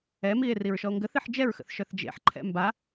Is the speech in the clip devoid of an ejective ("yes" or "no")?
yes